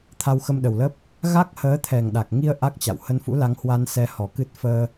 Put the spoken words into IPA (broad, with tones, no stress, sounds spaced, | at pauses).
t̪ʰ a˧ w x ə˧ m ɗ ə˨˩ w l ə˦˥ p̚ | ɣ a˦˥ k̚ h əː˨˦ t̪ʰ ɛ˨˩ ŋ ɗ a˨˩ k̚ ŋ i˧ ə̯ ʔ a˦˥ k̚ t͡ɕ a̰˧˨ w h ə˧ n f ṵ˧˥ l a˨˦ ŋ h w a˧ n s ɛ˧ h ɔ˨˩ k ɨ˦˥ t̚ f əː˧